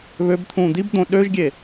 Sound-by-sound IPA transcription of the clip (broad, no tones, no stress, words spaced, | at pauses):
βøb t̪ʰũːd̪ib d̪õɗøʒɡʲe